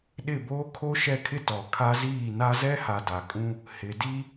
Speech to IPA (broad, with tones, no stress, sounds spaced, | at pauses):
ɗ ɪ˦˨ b oː˦ kʰ o˦ ʃ ɛ˦ kʰ ɪ˦ t ɔ˨ kʰ a˦ z iː˦˨ n a˦ z ɛ˦ h a˨ d a˨ kʼ ũ˦ | h ɪ˨ d i˦